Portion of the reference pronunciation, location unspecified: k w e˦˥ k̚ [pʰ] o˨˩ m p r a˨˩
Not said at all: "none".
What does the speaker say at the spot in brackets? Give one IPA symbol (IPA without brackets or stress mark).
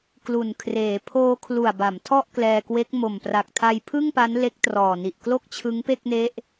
m